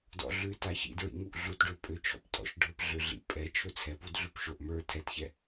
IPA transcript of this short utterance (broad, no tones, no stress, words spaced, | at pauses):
dɔ̰ɮʉta çḭdɹḭŋuʔ ɮutɖø pʼøt͡ʃʰɔ̰ptʼɔ̰ʃɖʱə˞p ɮøɮḭ pʼɛ t͡ʃʰɵt͡sʰɛpud ɮʉpʃoʔ mə˞ tʰɛtçɛ